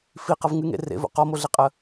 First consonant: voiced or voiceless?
voiceless